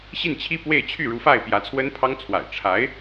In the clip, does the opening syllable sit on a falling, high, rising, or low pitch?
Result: falling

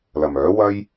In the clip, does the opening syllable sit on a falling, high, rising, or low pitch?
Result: low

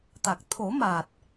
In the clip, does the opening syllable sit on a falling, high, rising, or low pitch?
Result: low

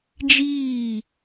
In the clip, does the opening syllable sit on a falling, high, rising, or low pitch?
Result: falling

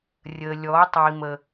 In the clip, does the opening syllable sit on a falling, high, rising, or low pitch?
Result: low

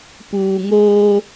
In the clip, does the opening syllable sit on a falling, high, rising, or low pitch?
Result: low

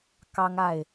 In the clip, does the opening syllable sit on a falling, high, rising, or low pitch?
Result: high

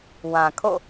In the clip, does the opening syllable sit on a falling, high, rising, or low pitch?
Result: low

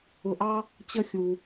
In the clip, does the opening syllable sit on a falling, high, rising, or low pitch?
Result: low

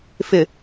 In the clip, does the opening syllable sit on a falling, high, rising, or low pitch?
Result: low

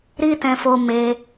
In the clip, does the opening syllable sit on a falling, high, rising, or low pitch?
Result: high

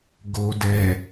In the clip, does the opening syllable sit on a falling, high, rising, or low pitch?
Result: low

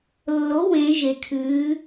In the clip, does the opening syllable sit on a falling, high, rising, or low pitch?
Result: rising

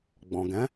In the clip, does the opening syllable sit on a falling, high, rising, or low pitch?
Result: low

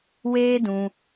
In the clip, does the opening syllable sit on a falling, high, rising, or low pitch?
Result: high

